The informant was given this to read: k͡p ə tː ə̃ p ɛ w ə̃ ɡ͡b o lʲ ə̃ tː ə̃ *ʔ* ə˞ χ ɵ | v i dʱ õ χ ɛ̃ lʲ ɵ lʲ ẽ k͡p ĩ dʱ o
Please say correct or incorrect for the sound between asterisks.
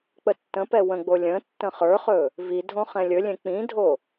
incorrect